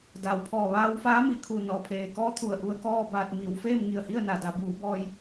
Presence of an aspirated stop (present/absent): present